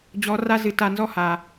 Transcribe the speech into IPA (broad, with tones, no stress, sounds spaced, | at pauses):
d͡ʑ ɔ˧˥ r a˥ z ɨ˧˥ t a˧ n z ɔ˥ h a˩